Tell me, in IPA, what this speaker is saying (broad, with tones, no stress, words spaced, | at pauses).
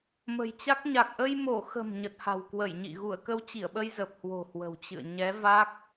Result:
mə̤˨˩jt͡ɕa˦˥k̚ ɲa˨˩k̚ʔə˧j mo˧˩xə̤˨˩m ɲə˨˩t̚ha̤˨˩wkwə˧˩jɲḭ˧˨ ɣu˧˩ə̯kə˧w t͡ɕi˧˩ə̯ɓə˧jzə˨˩p̚hwo̤˨˩ hwə̤˨˩wt͡ɕɨ̰˧˨ə̯ ɲɛ˨˦va˦˥k̚